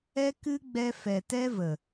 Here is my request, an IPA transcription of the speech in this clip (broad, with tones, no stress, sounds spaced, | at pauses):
ɛ˦ k ɨ˦ ɡ͡b ɛ˧ f ɛ˨ t ɛ˦ v ə˨